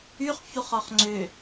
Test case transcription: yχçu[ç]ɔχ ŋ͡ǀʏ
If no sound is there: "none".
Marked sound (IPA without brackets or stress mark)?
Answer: χ